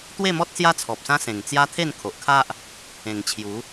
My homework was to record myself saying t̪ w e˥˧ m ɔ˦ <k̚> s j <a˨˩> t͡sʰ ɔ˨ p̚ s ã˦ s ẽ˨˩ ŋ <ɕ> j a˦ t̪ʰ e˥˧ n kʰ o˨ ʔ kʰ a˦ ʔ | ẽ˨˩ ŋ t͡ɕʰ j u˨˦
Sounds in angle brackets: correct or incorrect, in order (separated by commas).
incorrect, incorrect, incorrect